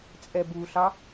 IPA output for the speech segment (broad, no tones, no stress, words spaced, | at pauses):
t͡sʼɛbuɬɑ